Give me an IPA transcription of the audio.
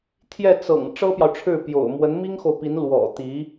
t̪ʰ j ɛ˥˩ t͡s ɤ̰˨˩ ŋ ʈ͡ʂ ɤ˥ p j ɑ˨ ʊ̯ ʈ͡ʂʰ ɻ̩˥˩ p j o̰˨˩ ʊ̯ m w ə˧˥ n m i˥ ŋ x o˨ ʊ̯ p i˧˥ n l w ɔ̰˨˩ t̪ i˧˥

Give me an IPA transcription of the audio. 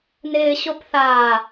n ɪː ɕ o p θ aː

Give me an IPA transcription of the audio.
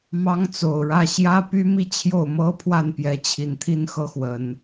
m ɑ˥ ŋ t͡s o˨˩ ʊ̯ ɻ ä˥˩ ɕ j ä˥ p y˥ m i˥˧ t͡ɕʰ j o˥˩ ʊ̯ m ɤ˥ pʰ w a˥˩ n p j ɛ˧˥ t͡ɕʰ i˨˩ n t̪ʰ i˥˧ n x ɤ˥˩ x w ə˨˩˦ n

